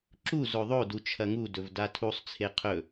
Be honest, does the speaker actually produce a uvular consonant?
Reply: yes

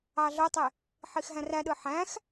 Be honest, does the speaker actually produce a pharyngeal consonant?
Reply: yes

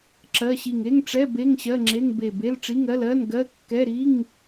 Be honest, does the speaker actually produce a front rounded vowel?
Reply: no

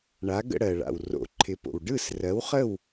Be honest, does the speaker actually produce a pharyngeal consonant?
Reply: no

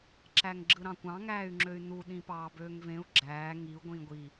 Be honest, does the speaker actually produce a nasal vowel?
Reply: yes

